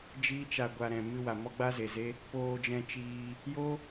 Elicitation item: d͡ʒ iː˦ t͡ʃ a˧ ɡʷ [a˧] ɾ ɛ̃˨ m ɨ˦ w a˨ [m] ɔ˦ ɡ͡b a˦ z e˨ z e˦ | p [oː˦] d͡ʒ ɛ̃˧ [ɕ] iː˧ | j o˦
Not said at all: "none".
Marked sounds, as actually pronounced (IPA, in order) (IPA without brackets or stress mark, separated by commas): a˧, m, oː˧, t͡ʃ